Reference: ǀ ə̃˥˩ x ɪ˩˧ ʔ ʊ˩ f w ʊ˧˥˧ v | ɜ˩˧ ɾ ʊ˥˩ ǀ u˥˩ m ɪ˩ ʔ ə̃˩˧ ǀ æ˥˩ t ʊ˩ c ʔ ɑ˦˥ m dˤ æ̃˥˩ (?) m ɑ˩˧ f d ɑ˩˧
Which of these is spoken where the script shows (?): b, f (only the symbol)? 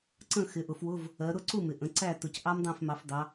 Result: f